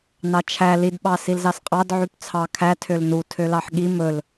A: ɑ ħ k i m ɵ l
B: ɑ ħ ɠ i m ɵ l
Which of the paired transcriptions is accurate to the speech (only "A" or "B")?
B